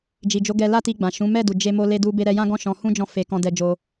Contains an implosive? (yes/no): no